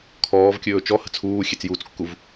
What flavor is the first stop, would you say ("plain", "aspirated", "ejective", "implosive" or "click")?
aspirated